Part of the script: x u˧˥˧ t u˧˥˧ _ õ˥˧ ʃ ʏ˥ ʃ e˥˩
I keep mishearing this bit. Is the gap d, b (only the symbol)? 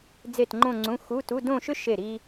d